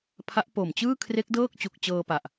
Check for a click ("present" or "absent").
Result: absent